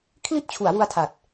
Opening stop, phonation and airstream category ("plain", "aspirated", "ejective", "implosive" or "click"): aspirated